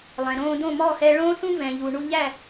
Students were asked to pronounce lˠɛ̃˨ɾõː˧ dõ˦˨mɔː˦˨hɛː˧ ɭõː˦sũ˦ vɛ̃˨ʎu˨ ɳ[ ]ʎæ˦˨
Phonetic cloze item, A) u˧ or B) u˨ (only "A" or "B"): A